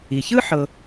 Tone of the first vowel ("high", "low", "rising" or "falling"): low